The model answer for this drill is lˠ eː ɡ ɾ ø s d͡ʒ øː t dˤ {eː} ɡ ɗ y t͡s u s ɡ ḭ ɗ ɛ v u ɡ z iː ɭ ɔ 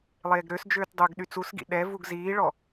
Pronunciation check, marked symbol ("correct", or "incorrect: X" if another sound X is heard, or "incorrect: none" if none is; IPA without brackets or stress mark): incorrect: øː